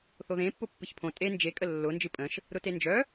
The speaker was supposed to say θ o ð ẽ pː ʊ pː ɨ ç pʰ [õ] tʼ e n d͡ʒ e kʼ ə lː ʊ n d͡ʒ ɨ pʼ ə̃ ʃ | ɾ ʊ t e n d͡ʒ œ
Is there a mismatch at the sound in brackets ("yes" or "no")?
no